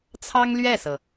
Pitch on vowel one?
high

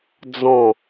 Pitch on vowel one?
falling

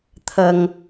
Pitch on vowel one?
low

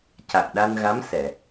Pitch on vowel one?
low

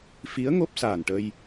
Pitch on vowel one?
rising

